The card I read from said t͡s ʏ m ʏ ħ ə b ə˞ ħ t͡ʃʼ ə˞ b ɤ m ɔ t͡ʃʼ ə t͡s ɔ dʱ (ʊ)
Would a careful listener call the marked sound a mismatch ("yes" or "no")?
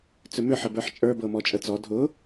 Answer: no